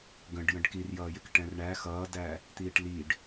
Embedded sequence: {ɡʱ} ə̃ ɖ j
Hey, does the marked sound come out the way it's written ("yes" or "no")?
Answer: no